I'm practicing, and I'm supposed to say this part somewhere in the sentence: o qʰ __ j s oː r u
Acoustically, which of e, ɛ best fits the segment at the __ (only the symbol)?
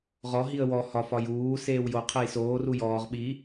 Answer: e